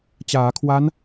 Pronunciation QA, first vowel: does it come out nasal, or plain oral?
oral